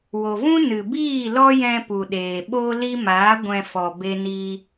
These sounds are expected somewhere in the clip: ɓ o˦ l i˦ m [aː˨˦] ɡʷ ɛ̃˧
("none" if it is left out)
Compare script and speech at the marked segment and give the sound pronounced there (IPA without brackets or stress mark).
aː˨˦